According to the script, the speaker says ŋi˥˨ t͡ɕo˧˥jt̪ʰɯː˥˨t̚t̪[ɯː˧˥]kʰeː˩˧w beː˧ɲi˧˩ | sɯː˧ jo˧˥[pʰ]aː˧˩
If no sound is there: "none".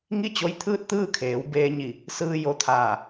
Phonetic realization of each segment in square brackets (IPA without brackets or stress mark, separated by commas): ɯː˥˨, t̪ʰ